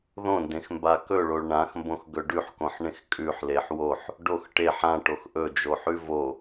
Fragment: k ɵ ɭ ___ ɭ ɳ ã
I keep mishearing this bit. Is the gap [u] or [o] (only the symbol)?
o